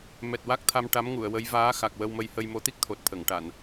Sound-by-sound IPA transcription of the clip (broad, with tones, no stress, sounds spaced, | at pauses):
m ɛ˨˩ t̚ w a˦˥ k̚ t̪ʰ a˧ m ʈ a˧˥ m ŋ u˨˩˨ ə̯ w ə˧˥ j v aː˧˥ x a˨˩ k̚ w ə˧ w m ə˧ j h ə˧ j m o˧˥ t̪ i˦˥ k̚ t̪ʰ o˨˩ t̚ t̪ʰ ə˨˩˨ ŋ ʈ a˨˩˨ n